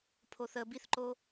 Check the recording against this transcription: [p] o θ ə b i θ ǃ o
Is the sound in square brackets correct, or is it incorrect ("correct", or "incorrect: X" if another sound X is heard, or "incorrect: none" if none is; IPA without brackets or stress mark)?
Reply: incorrect: pʰ